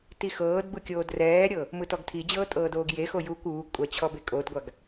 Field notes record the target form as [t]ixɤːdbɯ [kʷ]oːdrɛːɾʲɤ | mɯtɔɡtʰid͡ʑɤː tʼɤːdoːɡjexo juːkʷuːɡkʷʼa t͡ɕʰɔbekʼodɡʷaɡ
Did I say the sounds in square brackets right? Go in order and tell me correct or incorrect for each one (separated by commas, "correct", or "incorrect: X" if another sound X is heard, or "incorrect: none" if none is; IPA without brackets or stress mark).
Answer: correct, incorrect: kʲ